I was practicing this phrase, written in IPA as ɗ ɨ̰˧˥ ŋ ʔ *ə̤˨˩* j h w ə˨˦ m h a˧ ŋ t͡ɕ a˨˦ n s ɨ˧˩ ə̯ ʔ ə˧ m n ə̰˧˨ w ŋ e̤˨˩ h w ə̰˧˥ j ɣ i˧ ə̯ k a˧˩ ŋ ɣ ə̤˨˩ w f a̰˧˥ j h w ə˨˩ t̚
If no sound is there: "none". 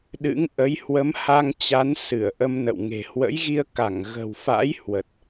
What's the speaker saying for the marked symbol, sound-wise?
ə˨˦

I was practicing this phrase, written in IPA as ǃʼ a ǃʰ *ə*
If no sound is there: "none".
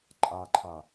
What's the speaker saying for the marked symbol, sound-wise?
a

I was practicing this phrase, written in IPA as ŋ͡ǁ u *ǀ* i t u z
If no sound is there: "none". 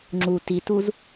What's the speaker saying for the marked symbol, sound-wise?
t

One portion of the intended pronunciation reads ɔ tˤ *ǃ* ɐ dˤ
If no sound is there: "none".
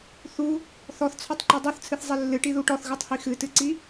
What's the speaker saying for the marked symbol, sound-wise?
ǃ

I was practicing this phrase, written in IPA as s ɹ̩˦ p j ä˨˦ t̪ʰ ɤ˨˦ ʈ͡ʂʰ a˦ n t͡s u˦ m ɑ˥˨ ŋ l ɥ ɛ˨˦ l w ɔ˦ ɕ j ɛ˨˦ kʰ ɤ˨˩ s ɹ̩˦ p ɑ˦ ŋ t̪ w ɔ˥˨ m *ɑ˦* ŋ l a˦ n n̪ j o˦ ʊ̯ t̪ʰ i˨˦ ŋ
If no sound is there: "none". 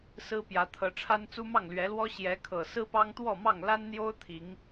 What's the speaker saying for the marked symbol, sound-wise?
ɑ˥˨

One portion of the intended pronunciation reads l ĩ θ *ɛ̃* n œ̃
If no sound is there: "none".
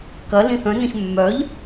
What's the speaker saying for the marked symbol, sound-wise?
œ̃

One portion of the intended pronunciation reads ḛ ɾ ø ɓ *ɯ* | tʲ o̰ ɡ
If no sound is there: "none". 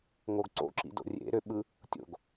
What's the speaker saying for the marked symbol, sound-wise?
ɯ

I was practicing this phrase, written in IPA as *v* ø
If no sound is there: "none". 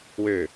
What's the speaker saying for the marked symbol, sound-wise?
w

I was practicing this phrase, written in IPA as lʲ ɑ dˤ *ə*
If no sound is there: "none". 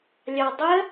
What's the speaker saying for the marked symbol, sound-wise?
ə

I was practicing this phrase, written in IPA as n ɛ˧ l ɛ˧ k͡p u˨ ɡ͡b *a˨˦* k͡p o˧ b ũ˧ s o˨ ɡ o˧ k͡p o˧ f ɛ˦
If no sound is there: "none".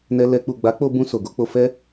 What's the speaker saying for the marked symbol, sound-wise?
a˨˦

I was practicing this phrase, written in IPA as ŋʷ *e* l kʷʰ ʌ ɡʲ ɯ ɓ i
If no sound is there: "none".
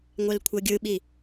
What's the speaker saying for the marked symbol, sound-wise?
ɛ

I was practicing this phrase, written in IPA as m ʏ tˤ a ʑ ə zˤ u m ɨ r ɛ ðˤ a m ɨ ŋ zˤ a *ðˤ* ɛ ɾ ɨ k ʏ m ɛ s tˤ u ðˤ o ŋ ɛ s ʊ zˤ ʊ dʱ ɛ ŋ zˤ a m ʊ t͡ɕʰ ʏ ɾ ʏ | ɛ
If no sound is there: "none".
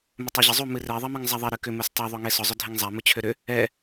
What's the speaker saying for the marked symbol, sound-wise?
ðˤ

